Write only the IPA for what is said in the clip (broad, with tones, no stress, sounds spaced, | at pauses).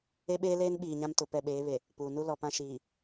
e˦ ɓ eː˦ l eː˦ n ɓ iː˨ ɲ ã˦ m t ʊ˨ p ɛ˦˨ ɓ eː˨˦ β e˨ | p uː˨ n u˦ l ɔ˨ p ã˦ ʃ iː˨